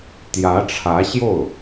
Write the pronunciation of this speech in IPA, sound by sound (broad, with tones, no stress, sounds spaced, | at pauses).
t̪ j ä˧˥ ʈ͡ʂʰ ä˧˥ ɕ j o˥˩ ʊ̯